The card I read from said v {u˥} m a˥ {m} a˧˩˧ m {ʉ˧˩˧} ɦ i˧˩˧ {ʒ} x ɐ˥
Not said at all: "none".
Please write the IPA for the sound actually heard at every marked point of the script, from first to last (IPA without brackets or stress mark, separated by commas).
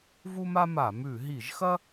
u˥, m, ʉ˧˩˧, ʒ